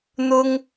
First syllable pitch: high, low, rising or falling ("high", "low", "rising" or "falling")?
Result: high